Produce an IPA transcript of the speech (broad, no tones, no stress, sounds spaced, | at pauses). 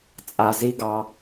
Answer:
t͡sʼ a z i ɡ ɑ